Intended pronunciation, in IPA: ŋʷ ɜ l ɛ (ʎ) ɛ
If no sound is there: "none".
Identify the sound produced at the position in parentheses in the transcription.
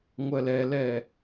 l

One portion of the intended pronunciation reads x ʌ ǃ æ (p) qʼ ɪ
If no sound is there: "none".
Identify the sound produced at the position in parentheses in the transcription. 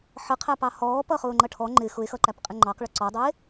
p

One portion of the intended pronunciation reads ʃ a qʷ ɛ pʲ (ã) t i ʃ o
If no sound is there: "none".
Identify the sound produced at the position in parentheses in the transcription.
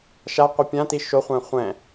ã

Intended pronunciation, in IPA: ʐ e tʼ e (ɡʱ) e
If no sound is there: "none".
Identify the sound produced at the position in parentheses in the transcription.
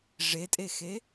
x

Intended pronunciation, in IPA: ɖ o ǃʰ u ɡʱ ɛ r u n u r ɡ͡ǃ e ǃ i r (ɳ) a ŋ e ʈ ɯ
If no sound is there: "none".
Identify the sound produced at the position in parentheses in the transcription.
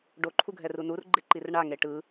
ɳ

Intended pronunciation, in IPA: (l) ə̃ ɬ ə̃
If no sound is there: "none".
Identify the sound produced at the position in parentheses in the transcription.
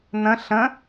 n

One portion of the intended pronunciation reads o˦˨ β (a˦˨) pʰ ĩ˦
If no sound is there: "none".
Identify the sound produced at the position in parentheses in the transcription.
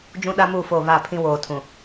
a˦˨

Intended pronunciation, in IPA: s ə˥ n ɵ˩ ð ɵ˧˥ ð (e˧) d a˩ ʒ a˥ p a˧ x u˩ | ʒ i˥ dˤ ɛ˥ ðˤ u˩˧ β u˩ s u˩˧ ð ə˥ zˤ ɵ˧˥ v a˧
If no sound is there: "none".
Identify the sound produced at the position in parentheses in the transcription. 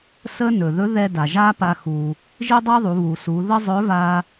ɛ˧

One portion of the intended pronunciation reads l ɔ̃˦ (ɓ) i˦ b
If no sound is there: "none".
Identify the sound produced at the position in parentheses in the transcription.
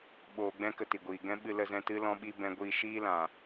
ɓ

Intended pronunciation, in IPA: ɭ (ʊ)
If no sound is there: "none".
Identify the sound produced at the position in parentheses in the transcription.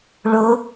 ʊ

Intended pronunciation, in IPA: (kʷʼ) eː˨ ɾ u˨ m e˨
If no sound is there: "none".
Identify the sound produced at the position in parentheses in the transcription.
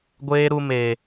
ɡʷ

